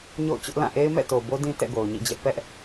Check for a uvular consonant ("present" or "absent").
absent